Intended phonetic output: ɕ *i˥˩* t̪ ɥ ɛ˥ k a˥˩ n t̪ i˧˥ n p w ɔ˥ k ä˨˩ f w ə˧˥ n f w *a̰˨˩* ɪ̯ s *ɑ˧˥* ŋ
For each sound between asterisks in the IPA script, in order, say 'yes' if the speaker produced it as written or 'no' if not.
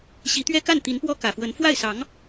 no, no, yes

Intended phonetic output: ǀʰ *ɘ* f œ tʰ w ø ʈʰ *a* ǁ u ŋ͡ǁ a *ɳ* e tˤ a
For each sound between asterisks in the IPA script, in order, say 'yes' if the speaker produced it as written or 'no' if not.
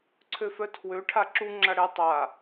no, yes, no

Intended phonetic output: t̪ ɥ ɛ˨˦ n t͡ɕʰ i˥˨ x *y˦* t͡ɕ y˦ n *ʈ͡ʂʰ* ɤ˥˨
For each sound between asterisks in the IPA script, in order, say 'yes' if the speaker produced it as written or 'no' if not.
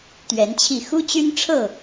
no, yes

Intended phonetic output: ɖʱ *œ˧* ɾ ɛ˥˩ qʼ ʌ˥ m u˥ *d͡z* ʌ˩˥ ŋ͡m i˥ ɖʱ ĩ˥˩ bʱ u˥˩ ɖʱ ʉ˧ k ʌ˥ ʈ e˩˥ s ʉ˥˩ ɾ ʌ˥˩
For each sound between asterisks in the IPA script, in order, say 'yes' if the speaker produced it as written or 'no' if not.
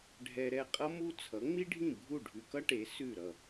no, no

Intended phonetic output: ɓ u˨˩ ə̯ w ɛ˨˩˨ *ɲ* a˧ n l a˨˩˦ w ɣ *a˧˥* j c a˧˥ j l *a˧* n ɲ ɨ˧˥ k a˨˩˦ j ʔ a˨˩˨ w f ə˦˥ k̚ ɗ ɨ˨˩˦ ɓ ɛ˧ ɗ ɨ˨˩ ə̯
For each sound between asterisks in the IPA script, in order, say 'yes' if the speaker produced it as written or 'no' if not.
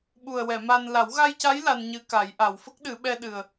no, no, yes

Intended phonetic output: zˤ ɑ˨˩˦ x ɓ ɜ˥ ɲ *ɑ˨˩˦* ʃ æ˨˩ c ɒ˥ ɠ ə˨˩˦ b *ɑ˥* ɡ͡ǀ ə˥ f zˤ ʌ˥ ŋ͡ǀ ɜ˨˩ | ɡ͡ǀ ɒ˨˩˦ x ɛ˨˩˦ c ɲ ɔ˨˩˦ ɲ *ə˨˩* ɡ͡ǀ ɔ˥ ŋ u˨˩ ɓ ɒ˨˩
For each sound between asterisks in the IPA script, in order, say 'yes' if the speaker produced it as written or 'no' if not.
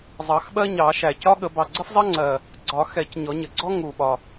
yes, no, yes

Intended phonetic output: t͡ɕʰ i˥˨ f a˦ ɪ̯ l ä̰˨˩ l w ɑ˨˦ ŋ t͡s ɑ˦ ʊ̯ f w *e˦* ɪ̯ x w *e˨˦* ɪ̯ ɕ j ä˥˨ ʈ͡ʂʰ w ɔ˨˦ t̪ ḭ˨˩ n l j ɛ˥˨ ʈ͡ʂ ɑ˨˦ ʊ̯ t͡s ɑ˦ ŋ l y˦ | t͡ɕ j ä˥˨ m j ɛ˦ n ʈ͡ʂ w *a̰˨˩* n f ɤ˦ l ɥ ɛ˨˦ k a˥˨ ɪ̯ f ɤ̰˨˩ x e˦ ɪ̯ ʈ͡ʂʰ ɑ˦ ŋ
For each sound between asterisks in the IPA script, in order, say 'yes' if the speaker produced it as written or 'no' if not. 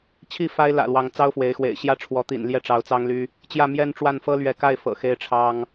no, no, no

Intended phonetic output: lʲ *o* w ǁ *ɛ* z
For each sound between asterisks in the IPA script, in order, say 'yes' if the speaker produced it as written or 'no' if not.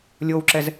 yes, yes

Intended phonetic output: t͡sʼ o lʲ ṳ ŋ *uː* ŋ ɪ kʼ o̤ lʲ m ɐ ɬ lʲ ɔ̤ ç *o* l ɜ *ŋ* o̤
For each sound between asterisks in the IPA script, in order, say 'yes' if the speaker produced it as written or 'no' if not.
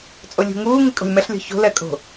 yes, no, no

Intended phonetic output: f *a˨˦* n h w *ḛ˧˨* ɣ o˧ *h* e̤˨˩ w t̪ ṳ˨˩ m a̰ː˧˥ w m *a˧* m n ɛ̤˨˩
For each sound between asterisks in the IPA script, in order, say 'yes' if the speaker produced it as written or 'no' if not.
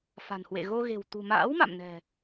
no, yes, no, no

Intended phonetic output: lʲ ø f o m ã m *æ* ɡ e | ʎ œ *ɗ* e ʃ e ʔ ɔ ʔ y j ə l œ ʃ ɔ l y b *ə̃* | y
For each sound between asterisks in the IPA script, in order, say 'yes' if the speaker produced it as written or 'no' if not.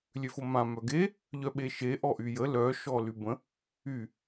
no, no, yes

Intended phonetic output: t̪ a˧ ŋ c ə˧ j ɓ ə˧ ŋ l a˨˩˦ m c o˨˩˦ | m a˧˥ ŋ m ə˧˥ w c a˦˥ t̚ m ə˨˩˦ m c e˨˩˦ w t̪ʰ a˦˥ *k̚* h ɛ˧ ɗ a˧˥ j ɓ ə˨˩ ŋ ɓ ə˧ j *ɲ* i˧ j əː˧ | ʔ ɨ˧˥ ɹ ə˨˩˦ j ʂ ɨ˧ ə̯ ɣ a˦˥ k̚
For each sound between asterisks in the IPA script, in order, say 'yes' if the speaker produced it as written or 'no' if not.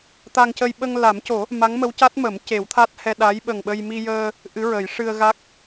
no, no

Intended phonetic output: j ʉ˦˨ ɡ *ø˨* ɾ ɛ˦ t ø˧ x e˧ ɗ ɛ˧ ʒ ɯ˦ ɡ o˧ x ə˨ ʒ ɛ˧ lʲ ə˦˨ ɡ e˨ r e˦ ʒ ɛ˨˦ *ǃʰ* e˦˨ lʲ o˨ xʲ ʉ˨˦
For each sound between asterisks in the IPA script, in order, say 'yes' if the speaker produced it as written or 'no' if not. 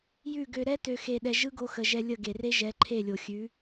no, yes

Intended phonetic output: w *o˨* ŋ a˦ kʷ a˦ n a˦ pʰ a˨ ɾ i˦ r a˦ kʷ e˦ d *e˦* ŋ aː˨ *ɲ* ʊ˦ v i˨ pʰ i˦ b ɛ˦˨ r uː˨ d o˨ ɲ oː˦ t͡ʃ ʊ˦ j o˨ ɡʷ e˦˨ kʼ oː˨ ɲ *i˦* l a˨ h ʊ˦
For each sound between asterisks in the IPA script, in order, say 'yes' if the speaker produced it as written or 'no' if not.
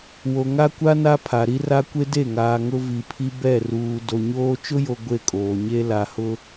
yes, no, no, no

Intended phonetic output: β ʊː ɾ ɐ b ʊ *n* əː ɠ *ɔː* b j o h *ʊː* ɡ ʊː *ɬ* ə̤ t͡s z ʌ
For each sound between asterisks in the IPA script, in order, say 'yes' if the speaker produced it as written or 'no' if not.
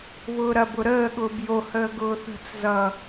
no, no, no, no

